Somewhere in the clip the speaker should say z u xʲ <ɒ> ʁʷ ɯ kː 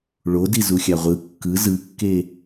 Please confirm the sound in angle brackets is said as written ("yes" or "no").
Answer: no